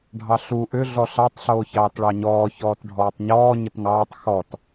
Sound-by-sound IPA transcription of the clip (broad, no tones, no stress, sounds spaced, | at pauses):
ɖʱ ɑ ɬ u ʔ ʏ ɮ ɔ ɬ ɑ tˤ ɬ oː ç ɑː t ɭ ɑ ɲ ɔː ç ɔː t ɖʱ ɔː tˤ ɲ ɔː ɲ ə t ŋ ɑː tˤ x ɔ t